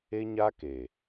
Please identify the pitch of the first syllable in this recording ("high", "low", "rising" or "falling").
high